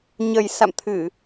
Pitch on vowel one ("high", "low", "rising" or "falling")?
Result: low